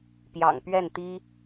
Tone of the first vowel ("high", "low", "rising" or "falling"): low